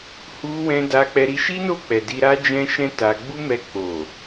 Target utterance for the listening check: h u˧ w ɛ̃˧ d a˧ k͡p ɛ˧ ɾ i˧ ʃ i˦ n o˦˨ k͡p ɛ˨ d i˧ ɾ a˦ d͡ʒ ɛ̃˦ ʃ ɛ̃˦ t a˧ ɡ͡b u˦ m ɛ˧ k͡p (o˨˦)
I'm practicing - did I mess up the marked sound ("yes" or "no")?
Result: yes